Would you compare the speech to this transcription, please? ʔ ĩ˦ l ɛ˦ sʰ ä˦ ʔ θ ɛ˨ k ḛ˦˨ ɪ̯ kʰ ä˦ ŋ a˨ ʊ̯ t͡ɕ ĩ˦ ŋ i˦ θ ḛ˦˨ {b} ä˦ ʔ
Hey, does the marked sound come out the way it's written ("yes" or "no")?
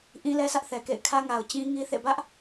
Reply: yes